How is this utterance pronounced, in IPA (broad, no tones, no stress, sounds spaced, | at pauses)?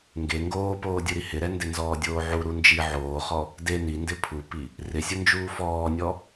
ŋ ɡ e ŋ ɡ oː p oː dʲ u ɾ i h ɪ ɾ ɛ n d ɪ n z ɔː dʲ oː ʕ u ɾ u n d͡ʒ i ʕ oː χ ɔ | d e n i n d ɪ pʰ u p i | r ɪ sʲ ʊ n d͡ʒ uː f ɔː nʲ ɔ